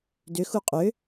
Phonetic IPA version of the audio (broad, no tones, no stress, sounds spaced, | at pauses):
d ʏ x u qʼ ʏ